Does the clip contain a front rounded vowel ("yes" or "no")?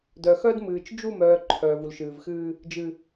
yes